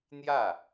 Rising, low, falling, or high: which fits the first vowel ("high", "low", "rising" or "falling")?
falling